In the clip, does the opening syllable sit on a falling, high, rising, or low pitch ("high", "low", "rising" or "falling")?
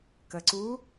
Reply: low